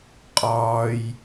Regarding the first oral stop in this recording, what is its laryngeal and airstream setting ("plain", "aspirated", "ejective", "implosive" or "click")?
ejective